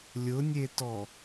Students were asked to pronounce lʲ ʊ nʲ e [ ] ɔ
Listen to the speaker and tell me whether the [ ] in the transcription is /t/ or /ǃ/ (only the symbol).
t